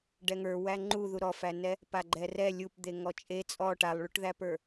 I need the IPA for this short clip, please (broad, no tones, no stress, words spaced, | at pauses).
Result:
ɖɛŋə˞ wæŋ͡ǃu ðuɾɔfænɛ | paɡ͡ǃɛrɛ lʲupd̪e ŋɔt͡ʃʼe t͡sʼɔ ʈalˠɭuʈðæpə˞